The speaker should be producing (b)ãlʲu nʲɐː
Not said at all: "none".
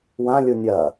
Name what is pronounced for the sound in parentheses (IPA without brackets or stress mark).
w